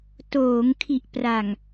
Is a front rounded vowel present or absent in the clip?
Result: absent